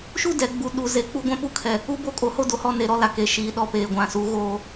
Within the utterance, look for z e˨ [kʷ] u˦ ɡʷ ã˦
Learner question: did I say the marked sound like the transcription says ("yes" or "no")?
no